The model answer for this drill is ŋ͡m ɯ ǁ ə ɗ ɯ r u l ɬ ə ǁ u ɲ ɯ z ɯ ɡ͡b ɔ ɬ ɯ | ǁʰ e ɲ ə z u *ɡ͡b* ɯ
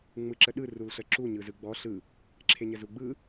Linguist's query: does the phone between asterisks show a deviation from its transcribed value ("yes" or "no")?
no